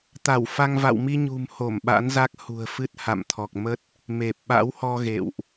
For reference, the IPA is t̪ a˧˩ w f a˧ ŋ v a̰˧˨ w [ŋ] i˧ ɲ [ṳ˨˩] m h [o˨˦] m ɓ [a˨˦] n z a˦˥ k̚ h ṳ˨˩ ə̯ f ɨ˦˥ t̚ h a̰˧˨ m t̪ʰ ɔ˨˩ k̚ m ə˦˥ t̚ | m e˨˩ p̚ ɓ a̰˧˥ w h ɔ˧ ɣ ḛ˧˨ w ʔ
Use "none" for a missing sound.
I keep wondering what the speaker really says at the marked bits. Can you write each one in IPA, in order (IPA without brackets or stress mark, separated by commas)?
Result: m, ṳ˨˩, o˧˩, a̰˧˥